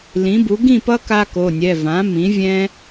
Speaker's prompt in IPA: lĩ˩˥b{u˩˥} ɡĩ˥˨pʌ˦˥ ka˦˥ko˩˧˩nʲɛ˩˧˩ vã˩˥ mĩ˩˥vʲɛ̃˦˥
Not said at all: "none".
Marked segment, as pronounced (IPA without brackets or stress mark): u˩˥